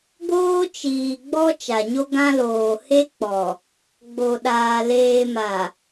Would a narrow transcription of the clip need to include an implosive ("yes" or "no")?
yes